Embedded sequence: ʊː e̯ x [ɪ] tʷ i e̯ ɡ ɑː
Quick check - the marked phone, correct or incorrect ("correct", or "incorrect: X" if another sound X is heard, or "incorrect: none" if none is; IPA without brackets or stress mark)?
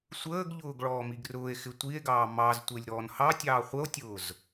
correct